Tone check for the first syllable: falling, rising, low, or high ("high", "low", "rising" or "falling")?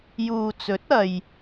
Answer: low